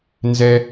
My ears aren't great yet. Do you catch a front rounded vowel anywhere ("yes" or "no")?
no